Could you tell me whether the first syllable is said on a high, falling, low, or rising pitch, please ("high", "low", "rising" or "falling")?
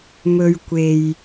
low